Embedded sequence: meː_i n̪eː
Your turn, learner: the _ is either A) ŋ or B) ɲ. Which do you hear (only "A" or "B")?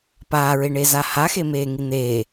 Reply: A